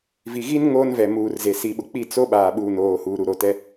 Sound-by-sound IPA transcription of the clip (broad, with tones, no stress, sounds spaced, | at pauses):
v i˨ ɣ i˦ n ŋ oː˦ n v ɛ˨ m uː˨ r z e˨ s i˨ ɓ ʊ˨ k͡p i˦˨ t͡s o˦ ɓ aː˨ ɓ uː˨ n oː˨ h uː˨ ɾ u˨ ɾ o˨ t ɛ˦